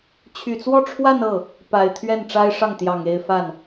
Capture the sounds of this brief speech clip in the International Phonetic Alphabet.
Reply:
t͡ɕʰ y˨˩ t͡s w ɔ˥˧ ʈ͡ʂʰ w a˥˧ n ɤ˥˩ | p a˨˩ ɪ̯ t̪ʰ ɥ ɛ˥˩ n ʈ͡ʂ a˥ ɪ̯ ʂ ɑ˥˩ ŋ t̪ j ɑ˨˩ ŋ e˥˧ ɪ̯ f a˥˩ n

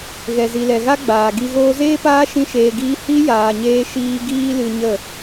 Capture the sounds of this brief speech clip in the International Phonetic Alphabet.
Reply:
ɣ ɛ˨ z i˨ l ɛ˨ ɣ a˦ ɡ͡b aː˨ ɡ i˧ ɣ oː˧ z eː˦ p aː˦ ʃ ĩ˦ ʃ eː˧ ɡ iː˦ h i˦ j aː˨ ɲ eː˧ ʃ iː˧ ɡ iː˦ l ɨ˧ ɲ ə˦˨

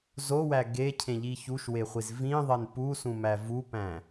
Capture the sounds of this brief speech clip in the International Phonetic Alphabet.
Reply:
z o w æ ɡ e cʰ ẽ ʎ i ç u ʃ w e χʷ i z v ĩ ðˤ e n p u s ũ m æ v u p æ̃

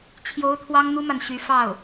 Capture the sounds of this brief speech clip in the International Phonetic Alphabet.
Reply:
t͡ɕʰ j o˧˥ ʊ̯ t̪ʰ w ɑ˥ ŋ n̪ u˥ m a˨ n ɕ y˧˥ f ɑ˥˩ ʊ̯

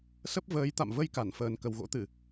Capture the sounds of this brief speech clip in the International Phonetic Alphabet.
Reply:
s ə˦˥ p̚ v əː˨˦ j t̪ a̰˧˨ m v ə˧ j k a˧˩ n f əː˨˩ n k ə˨˩ w ɣ o̰˧˥ t̪ ɨ˧˩˨

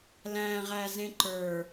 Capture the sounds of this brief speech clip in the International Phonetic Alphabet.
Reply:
l æ̃ ʁ æ z ẽ ǃ ə˞

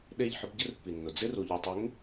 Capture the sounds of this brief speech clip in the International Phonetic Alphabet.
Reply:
ɗ e˦˨ ʎ ħ ʊ˦ b ɟ ɪ˦ r pː i˨ nː ʊ˨ d͡z ɪ˦ r u˨ ʎ u˨ tˤ ɪ˨˦ ŋ

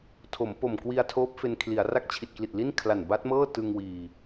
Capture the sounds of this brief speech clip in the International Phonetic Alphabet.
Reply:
tʰ o˩˦ m p o˨˩ m k w i˧ a̯ tʰ oː˦˥ p̚ f e˧ n kʰ l i˩˦ a̯ r a˥˩ k̚ t͡ɕʰ i˨˩ t̚ k l i˨˩ t̚ l i˥˩ n kʰ l a˨˩ n b a˦˥ t̚ m ɤː˥˩ t ɯ˧ ŋ w iː˨˩

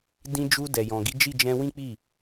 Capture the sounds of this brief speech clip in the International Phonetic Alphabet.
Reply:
d ĩ˧ d͡ʒ u˧ d ɛ˨ j ɔ̃˨ ɡ i˨˦ d͡ʒ i˦˨ d͡ʒ ɛ̃˧ w ĩ˦ k͡p i˦˨

